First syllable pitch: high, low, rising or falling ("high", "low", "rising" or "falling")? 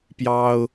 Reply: high